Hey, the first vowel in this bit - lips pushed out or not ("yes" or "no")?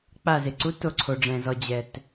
no